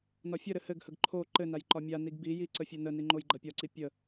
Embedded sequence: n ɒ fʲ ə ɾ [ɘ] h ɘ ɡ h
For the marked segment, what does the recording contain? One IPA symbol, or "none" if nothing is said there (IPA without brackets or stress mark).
ɘ